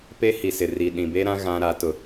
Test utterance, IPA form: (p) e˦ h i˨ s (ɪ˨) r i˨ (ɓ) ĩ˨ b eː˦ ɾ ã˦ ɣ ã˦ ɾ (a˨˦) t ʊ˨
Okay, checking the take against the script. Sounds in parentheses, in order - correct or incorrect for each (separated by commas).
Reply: correct, correct, incorrect, correct